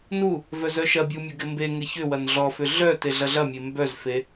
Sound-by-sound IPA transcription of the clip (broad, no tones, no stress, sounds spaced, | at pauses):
n u | v œ z œ ʃ ɐ bʲ u mʲ ʊ ɡ ɪ m b e ŋ ɪ ç ʏ w ɐ n ɮ ɔ f ʏ ɮ œ t e ɮ ɐ ɮ ɐ mʲ e m b œ z f e